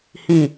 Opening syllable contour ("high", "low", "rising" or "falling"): low